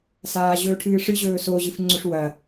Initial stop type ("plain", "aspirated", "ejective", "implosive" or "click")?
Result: aspirated